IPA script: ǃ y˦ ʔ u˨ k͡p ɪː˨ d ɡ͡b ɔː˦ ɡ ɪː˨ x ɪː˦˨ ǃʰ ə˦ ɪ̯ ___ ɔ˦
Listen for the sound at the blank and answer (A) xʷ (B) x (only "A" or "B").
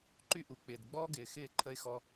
B